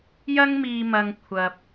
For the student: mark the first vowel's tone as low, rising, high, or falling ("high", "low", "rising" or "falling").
high